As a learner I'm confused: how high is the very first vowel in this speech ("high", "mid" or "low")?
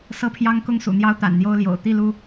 mid